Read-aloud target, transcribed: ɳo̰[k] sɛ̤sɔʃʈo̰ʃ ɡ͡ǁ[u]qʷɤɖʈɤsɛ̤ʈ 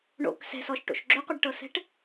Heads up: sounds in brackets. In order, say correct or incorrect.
correct, incorrect

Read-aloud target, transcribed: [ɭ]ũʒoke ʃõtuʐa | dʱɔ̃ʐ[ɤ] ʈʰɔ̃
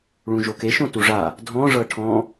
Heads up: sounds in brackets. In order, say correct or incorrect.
correct, correct

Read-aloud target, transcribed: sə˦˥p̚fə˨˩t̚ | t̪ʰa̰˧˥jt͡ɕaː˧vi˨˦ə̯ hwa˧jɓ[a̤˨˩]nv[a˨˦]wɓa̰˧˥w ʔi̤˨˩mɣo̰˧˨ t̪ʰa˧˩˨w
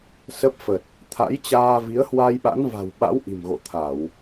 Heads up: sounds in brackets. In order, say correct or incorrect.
incorrect, incorrect

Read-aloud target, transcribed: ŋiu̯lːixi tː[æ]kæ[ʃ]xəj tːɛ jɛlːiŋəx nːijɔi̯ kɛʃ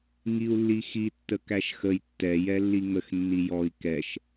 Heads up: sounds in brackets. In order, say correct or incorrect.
incorrect, correct

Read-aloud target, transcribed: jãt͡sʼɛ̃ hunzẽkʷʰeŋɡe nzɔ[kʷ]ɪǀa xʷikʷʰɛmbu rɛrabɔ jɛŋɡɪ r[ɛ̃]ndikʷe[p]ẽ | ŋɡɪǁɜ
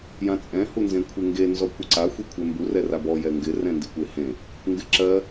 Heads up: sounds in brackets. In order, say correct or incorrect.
correct, correct, incorrect

